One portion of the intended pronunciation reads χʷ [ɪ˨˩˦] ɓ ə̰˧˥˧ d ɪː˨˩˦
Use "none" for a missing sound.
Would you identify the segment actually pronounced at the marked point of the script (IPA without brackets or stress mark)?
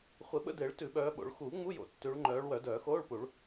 ɪ˨˩˦